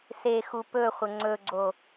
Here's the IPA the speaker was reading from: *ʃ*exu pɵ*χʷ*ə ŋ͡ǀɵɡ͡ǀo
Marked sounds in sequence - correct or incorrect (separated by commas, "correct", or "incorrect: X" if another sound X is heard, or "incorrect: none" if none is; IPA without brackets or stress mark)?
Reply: incorrect: s, correct